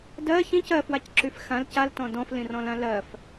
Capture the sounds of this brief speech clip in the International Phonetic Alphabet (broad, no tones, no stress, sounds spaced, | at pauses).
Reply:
d ɜ ç ĩ c ɜ f w a c ǁ y f x ã l c a l t ɔ̃ d ɔ̃ f l ĩ r ɔ̃ l ã l ɜ f